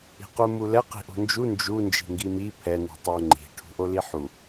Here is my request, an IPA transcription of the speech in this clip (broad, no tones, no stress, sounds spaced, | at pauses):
i̤ q u m u l ɛ q i̤ ʔ o̤ n d͡ʒ u n d͡ʒ u n d͡ʒ i̤ ŋ ɡ i m i pʰ ɛ n i̤ tˤ o ŋ͡ǃ i̤ ʈʰ ṳ ʔ o l i ħ u